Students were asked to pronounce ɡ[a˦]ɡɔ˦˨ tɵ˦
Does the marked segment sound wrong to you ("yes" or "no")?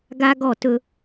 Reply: no